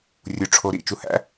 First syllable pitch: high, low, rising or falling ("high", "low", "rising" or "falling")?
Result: low